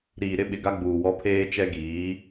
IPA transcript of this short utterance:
ɾ iː˨ ɾ ɪ˦ ɓ ɪ˨ ɡ a˦ ɡ͡b uː˨ w ɔ˦ pʰ eː˦ t͡ʃ ɛ˦ ɡ iː˨˦

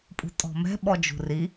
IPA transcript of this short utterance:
pʼ ṳ tʼ ɔ̤ m ɛ̤ ɓ ɔ d͡ʒ ṳ r i

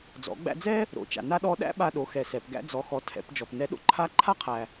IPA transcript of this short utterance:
d͡z ɔ̰˩˧ ɡ͡b æ̰˧ d͡z ɛ˥ | ɾ o̰˩˧ t͡ʃ a̰˩ n a˥ ɗ ɔ˧˥ ɗ æ̰˥ ɓ a˧ ɗ o˩˧ x ɛ˩ s ɛ˩ p ɡ æ̰˧ d͡z ɔ˩˧ x ɔ˩˧ tʰ ɛ̰˩˧ p d͡ʒ ɔ˩ p n ɛ˧˥ ɗ o̰˥ ǃʰ a˧˥ ǃʰ a˥ qʰ æ˩

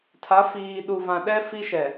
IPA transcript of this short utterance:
tʰ a˨˦ f iː˨ ɗ u˨ v ã˨ ɗ ɛ˦ f i˦ ʃ ɛ˨

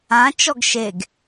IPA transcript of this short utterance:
ã t͡ʃ ɔ ɡ ʃ e ɡ

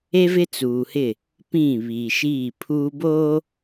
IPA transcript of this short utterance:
e˦ v ɪ˦ t͡s uː˨ h ɪ˦˨ | p ĩ˦˨ β iː˨ ʃ iː˦˨ pʰ uː˦ b oː˦

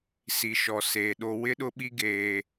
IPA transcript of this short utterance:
s i˨ ʃ ɔ˨ s eː˨ ɗ o˦ w ɪ˦ ɗ ʊ˦ ɓ i˦ ɡ eː˦

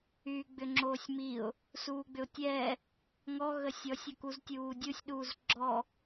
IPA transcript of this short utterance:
yː ɡ͡b ʏ ŋ͡ǁ oː sʲ m i ʊ̯ | s uː ɡ͡b ʏ ʊ̯ tʲ ɛː | ŋ ɔ ɣ ə sʲ ɔ sʲ ɐ k u z tʲ uː dʲ u sʲ ɗ uː z ɡ͡ǁ ɔ

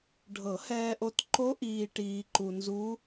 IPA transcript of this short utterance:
ɖʱ ɤ˨˩˦ h ɛː˧ ʔ o˧ t ǃ o˦˥ ʔ iː˧ ʈ iː˧ ǃ u˧ n z u˦˥

